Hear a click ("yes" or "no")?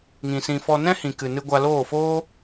no